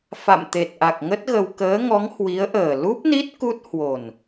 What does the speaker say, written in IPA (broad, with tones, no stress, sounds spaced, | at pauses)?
f a̰˧˨ m t̪ e˨˩ t̚ ʔ a˨˩ k̚ ŋ ə˦˥ t̚ ɣ ə˧ w k əː˨˦ ŋ ɔ˨˦ ŋ h w i˨˦ ə̯ ʔ əː˨˩ l u˦˥ p̚ n i˦˥ t̚ k u˦˥ t̚ h w o˨˩ n